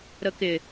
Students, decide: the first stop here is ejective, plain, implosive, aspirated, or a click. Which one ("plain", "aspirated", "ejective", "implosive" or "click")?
plain